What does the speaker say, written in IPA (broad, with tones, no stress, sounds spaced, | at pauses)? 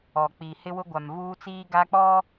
ɔ˨ k͡p i˨ h ɪ˦ w ʊ˦ ɡʷ a˨ m v uː˦ t͡s iː˦ ɡ a˦ k͡p ɔ˦